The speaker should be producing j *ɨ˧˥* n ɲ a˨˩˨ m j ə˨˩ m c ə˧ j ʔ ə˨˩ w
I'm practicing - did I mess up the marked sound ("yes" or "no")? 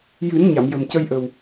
yes